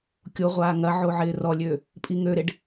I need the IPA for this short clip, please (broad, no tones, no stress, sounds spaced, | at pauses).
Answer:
kʲ o ʁʷ aː ŋ ɐ ʕ o ʕ ɪː r ɔ lʲ ø | pʼ i ŋ ø ɾ ɪ ɖ